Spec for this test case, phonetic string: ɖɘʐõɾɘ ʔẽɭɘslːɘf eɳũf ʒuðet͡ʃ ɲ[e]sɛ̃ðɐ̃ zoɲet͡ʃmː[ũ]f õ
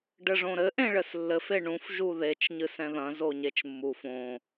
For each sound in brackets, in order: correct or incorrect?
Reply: incorrect: ɨ, incorrect: u

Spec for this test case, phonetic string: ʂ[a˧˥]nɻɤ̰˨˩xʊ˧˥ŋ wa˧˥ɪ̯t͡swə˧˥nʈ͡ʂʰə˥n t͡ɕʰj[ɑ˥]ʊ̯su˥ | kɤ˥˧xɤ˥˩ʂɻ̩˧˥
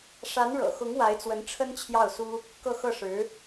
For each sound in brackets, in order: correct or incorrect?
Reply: correct, incorrect: ɑ˥˩

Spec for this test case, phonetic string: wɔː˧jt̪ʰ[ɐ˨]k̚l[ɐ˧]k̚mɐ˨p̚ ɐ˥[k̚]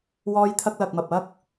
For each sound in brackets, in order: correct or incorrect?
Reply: incorrect: ɐ˧, incorrect: ɐ˨, correct

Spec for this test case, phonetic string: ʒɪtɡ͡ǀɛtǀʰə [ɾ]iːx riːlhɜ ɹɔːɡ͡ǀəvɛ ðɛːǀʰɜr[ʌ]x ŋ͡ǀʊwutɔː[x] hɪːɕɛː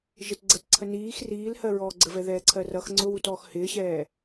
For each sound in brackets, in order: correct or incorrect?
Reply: incorrect: n, correct, correct

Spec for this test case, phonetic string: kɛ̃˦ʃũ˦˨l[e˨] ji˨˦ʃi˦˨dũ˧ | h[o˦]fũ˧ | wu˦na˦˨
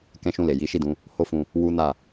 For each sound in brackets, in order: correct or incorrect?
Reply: correct, correct

